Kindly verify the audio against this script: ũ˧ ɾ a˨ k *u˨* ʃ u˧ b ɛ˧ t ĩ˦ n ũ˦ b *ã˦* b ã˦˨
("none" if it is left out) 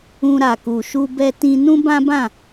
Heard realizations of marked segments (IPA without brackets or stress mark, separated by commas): u˨, ã˦